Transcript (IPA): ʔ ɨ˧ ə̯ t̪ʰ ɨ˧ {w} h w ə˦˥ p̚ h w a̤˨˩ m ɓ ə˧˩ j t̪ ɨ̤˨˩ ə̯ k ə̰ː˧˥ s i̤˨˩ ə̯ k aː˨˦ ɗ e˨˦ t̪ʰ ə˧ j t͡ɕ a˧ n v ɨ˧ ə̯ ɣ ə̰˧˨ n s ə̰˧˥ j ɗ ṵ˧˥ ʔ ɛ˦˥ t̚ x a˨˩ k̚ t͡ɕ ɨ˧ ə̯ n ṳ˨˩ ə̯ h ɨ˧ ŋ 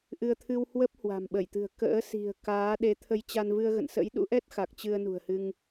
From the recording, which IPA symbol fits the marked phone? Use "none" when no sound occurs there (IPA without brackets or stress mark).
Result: w